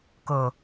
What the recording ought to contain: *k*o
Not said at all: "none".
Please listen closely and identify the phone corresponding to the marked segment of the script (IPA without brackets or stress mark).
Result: k